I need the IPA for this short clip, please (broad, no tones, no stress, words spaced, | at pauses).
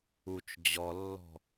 ut͡ʃ d͡ʑɔlːɔ̤